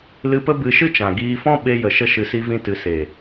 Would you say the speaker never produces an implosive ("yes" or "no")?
no